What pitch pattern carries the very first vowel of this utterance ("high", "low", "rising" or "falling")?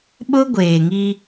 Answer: high